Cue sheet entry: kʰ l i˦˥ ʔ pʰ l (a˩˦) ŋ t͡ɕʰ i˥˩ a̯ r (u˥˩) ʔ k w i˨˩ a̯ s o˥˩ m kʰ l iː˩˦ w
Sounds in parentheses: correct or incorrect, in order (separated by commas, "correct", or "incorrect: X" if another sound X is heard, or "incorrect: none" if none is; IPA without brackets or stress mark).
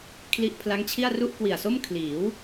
incorrect: a˦˥, correct